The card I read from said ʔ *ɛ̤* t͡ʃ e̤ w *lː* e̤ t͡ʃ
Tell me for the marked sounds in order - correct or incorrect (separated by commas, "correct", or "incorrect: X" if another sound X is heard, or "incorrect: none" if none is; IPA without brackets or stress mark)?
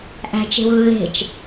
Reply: incorrect: æ̤, correct